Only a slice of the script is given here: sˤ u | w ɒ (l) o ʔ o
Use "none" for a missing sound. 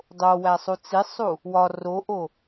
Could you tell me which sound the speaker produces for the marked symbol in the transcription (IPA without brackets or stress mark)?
r